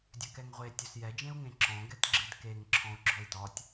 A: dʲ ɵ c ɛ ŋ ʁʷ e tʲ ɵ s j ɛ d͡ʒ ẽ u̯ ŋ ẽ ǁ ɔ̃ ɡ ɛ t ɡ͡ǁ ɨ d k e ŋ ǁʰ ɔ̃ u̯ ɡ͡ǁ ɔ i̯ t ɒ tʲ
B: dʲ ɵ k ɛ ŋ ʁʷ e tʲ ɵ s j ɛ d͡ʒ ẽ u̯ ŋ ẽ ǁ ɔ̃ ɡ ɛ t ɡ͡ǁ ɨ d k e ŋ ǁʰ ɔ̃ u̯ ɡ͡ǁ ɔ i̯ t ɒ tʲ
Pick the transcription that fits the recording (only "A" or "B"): B